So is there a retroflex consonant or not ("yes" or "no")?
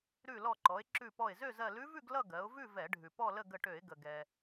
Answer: yes